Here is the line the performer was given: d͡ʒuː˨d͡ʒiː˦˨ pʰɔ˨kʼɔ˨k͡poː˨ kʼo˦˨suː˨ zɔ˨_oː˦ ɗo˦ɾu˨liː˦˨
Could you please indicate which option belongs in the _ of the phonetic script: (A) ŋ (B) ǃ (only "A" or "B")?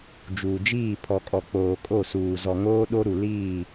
A